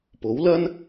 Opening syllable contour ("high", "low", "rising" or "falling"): rising